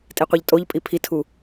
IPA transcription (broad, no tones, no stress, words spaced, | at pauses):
tʼiqʷiʎtʼoʎpʼi pʰitʰu